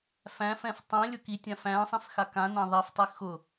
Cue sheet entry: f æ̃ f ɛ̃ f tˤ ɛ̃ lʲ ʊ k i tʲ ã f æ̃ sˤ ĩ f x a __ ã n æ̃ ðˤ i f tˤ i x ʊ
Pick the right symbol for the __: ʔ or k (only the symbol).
k